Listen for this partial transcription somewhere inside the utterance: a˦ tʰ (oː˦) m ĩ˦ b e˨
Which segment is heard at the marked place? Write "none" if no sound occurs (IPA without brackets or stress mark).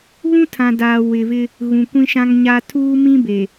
uː˦